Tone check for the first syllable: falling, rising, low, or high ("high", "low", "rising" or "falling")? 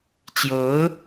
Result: rising